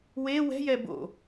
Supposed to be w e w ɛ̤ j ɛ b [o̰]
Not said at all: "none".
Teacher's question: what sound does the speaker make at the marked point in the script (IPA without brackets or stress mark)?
o̰